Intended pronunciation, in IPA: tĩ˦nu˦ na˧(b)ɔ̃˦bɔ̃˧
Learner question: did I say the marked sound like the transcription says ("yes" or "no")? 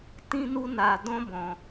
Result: no